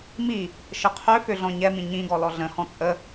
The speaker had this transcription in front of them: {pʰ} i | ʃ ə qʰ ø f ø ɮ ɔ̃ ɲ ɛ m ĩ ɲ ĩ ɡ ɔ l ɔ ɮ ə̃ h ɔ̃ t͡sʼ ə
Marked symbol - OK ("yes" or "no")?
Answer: no